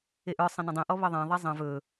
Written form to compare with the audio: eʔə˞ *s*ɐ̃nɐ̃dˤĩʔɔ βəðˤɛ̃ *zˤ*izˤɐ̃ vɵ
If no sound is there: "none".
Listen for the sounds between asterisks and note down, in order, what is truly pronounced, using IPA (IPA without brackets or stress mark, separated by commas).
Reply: sˤ, ðˤ